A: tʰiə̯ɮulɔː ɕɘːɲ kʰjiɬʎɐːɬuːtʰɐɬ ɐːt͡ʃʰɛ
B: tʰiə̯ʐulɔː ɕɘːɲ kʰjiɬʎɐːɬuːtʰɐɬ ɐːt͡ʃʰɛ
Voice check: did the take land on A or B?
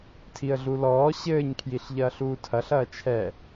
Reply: A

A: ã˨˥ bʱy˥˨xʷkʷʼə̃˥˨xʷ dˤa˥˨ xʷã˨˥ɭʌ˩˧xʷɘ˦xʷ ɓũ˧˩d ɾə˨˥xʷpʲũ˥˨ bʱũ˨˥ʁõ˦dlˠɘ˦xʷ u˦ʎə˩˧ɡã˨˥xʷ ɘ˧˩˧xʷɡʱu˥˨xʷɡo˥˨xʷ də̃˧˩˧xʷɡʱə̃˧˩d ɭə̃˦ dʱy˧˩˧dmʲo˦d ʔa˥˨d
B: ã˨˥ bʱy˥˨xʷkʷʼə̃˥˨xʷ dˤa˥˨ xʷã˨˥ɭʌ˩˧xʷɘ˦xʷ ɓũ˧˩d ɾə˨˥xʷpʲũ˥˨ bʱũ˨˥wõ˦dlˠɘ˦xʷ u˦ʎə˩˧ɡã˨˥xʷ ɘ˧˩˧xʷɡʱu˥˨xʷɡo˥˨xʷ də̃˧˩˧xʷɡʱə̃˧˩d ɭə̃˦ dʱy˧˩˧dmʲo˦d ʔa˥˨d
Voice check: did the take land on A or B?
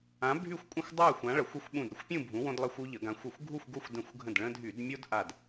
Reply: B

